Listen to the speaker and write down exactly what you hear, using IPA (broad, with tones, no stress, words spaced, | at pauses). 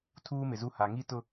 tʰuː˦mɪ˨zu˦ ha˨ŋi˦tʊ˦